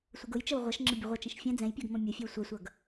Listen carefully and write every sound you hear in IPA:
sʷ ə ɡ ʊ j t͡ʃ ə w ʁʷ ʌ ʃ ŋ͡ǁ ə bʲ ʊ ʁʷ ʌ t͡ʃ ɛ̃ ʃ fʲ ɛ̃ d͡z ɛ̃ j pʲ ɜ ɡ m ɔ̃ mʲ ʊ fʲ ɜ w sʷ ɜ sʷ ʌ ɡ

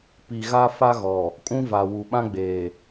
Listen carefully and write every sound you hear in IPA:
p i˨ ɣ a˦ f a˦ ɣ ɔ˨ | kʼ ũ˦ v a˨ w u˨ ɓ ã˦ ɡ͡b eː˨

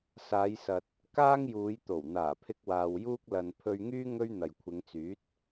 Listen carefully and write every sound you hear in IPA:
s aː˨˧ j s ɐ˨ t̚ | k aː˥ ŋ j uː˨˧ j t̪ o˨˩ w n̪ aː˨˩ pʰ ɪ˧ k̚ w aː˨ w j uː˥ k̚ l ɐ˨ n pʰ ɵ˧ ɥ ŋ yː˥ ŋ ɵ˥ ɥ n̪ ɐ˨ j kʷʰ ɪ˨˧ ŋ t͡s yː˨˥ t̚

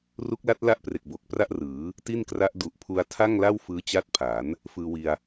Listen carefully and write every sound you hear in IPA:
r u˦˥ k̚ l a˦˥ t̚ l a˥˩ ʔ p r e˨˩ k̚ b o˨˩ k̚ p r a˥˩ ʔ r ɯː˩˦ | t i˥˩ n k r a˦˥ ʔ d u˨˩ ʔ pʰ u˧ a̯ tʰ a˥˩ ŋ l a˥˩ w f ɯː˦˥ t͡ɕ a˦˥ t̚ pʰ a˩˦ n | f ɯː˧ w i˧ a̯

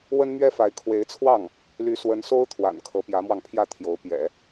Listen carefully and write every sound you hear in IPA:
w ə˥ n m ɥ ɛ˥ f a˧˥ ɪ̯ kʰ w e˧˥ ɪ̯ t͡sʰ w ɑ˥˩ ŋ | l y˧˥ s w ə˧˥ n s o˥ ʊ̯ t̪ʰ w a̰˨˩ n kʰ ɤ˧˥ p j ä˧˥ m w ɑ˧ ŋ pʰ j ä˥˩ t̪ʰ j o˧˥ ʊ̯ p j ɛ̰˨˩˦

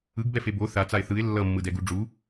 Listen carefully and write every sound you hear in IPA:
ɯ ɡ b ɛ f e b o θ a t͡s a ɪ̯ θ ɯ ɪ̯ lː ʌ mː ɯ d ɛ ɡ u ɖ͡ʐ u

